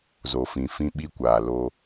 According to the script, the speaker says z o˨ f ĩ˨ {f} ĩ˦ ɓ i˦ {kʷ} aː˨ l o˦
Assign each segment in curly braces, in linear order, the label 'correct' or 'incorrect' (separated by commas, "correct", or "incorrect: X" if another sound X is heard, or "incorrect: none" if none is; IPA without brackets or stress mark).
correct, correct